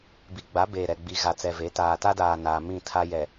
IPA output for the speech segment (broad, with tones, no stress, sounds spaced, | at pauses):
b i˨ ɡ͡b a˨˦ b eː˨ ɾ ɛ˨ ɡ͡b i˨ ɣ a˨ t͡s ɛ˨ v e˨˦ t aː˨ t a˦ d aː˨ n aː˨ m ĩ˦˨ tʰ a˦ j ɛ˨